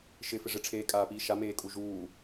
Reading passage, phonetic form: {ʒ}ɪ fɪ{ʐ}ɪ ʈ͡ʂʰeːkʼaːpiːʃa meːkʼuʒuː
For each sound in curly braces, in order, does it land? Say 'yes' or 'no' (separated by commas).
no, yes